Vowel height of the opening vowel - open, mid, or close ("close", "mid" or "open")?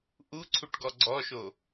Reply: close